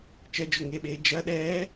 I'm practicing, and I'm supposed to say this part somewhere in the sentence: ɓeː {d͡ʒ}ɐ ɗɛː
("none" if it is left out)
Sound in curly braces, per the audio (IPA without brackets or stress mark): d͡ʒ